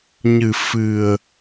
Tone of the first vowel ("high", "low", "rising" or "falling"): low